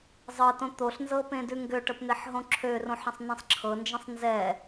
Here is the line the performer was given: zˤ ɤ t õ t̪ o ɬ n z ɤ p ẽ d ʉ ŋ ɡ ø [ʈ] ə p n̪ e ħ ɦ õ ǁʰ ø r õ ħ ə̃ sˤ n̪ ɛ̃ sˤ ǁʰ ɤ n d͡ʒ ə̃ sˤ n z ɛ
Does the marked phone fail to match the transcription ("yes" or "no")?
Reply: no